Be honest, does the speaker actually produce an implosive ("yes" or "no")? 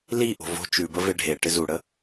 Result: no